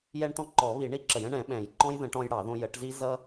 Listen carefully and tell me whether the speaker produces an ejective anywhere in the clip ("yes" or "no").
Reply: no